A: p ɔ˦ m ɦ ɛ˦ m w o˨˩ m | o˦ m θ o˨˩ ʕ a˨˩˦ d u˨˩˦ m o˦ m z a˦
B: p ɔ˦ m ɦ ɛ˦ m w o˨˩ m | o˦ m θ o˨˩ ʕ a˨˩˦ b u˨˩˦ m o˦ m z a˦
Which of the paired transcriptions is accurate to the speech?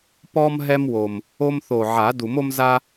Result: A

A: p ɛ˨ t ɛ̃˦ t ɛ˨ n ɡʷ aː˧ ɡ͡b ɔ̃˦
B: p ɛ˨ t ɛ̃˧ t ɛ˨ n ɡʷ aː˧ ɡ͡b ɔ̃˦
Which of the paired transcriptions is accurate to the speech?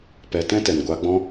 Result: A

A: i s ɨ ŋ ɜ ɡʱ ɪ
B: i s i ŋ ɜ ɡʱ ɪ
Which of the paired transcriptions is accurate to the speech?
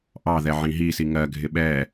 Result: B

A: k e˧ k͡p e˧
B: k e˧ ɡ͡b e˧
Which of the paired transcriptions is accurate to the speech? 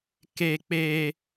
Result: A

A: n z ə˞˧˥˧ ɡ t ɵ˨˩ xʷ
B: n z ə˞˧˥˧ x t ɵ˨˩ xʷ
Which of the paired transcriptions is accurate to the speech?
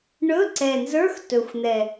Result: B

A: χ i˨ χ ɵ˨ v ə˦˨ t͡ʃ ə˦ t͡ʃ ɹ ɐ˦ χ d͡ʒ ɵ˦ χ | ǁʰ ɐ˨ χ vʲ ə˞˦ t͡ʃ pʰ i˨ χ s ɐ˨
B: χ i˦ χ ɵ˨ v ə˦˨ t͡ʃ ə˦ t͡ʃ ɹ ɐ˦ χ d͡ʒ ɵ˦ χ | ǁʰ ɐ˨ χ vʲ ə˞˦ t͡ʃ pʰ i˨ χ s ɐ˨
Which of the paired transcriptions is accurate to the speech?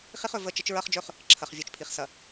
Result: B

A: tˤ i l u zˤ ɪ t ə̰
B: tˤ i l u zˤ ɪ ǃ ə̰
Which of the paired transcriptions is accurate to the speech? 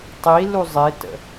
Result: A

